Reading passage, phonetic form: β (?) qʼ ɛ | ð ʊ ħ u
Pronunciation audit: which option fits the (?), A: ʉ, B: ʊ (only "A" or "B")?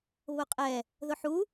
B